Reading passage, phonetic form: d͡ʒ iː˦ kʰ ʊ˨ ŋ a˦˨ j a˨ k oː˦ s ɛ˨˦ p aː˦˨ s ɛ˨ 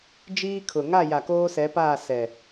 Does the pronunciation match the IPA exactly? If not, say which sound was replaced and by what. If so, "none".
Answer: none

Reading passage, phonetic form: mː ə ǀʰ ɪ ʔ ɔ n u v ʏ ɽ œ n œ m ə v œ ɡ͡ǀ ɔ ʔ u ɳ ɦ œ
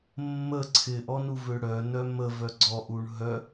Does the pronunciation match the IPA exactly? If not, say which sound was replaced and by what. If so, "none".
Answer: none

